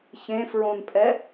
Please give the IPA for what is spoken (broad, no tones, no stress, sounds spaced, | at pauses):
ç ẽ f ɹ õ n pʼ ɛ